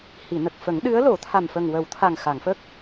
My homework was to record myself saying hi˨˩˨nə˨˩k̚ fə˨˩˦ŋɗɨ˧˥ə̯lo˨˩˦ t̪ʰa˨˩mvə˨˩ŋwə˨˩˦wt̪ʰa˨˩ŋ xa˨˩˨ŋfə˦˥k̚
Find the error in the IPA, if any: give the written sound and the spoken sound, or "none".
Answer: v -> f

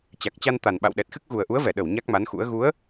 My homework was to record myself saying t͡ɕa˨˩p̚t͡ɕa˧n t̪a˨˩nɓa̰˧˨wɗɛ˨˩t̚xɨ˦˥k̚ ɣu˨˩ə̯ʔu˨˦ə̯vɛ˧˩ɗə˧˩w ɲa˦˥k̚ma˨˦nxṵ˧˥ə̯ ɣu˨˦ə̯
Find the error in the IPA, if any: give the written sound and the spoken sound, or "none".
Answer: p̚ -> k̚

